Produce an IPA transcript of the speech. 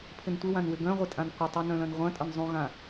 pʰɪntʷɪwãn wɪɡœ̃ ʁʷɪtʼãnqʷə tˤœnœ̃lɐ̃nʁʷɐ̃ tʼənzˤũɣã

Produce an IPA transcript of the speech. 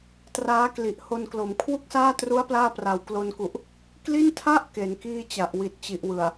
traː˦˥kli˨˩ʔ ho˧nklo˩˦m kʰwu˥˩k̚saː˥˩tru˦˥a̯ plaː˥˩ pra˨˩wklo˧nku˨˩ʔ | kli˥˩ntʰa˥˩ʔ ke˩˦nkiː˥˩t͡ɕa˨˩ʔ wi˨˩t̚t͡ɕi˨˩ʔwɯ˨˩a̯

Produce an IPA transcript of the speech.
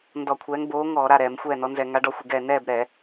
ndɔ˧˩˧kʷʰɛː˨˥ŋ boː˨˥ŋɔː˧˩˧ ɾa˥˨ɾɛː˧˩˧m xʷɛː˥˨nɔ˨˥nzɛ˧˩˧ŋa˨˥ ɖɔ˥˨xʷɪ˥˨ɡɛː˥˨ nɛː˥˨bɾɛ˧˩˧

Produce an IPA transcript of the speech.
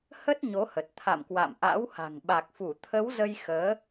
hə˦˥t̚ ɲo˨˦hə˨˩t̚ t̪ʰa̰˧˨mkwa̰˧˨mʔa̰˧˥wha̤˨˩ŋ ɓa˨˩k̚fu˧˩t̪ʰə˨˦wzə˧j xəː˨˦

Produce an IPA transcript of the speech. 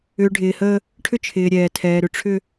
ʏː˨ɖʱɪː˨həː˦ | ʈʰʏ˦t͡ʃʰɪː˨ɾʲɛː˨ tʰɛː˨ɾʏ˨ʈ͡ʂʰʏ˦

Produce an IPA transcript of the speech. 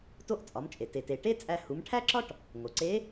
to˧˥ʔt͡sʼɒ˩˧mt͡ʃʼe˩ te˩te˩ ʈe˥t͡sʼæ˧ hu˩˧mʈʰæ˥ǁɒ˥ʈ | ŋo˩ǀe˧˥

